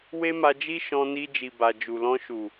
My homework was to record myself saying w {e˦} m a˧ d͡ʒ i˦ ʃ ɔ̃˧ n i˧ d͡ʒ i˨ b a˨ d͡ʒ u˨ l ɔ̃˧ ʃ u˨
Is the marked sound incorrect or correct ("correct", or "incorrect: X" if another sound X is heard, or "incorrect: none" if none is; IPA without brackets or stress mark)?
correct